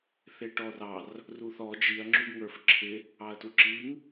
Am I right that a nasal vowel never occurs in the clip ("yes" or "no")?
yes